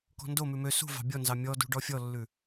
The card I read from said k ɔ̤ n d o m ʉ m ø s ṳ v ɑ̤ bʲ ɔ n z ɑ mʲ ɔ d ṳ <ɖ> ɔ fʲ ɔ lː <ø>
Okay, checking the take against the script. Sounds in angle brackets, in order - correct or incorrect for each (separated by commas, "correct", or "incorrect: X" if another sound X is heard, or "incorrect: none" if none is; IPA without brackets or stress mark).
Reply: correct, incorrect: ʉ